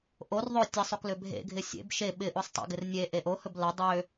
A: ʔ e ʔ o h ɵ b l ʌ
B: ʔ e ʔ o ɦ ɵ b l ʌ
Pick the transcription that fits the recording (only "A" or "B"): A